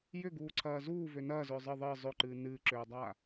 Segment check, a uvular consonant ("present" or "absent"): absent